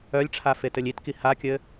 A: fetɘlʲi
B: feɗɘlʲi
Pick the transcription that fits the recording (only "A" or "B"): A